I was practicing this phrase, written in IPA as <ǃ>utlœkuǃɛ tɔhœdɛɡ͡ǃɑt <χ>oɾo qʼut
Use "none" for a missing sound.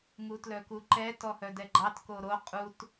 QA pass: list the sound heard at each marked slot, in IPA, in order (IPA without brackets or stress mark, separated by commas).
ŋ, k